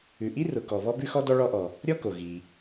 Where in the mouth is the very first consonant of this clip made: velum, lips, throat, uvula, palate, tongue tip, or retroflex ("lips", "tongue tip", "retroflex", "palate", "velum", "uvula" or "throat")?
throat